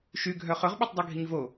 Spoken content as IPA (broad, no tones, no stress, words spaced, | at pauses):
ʃyɡʱœ χɵʁɓotˤdˤœɡʱiɲ vo